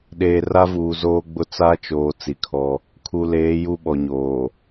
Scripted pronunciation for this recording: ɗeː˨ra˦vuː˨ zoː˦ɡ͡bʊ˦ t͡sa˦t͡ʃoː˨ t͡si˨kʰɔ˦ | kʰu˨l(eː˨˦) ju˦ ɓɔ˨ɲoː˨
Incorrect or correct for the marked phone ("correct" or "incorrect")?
correct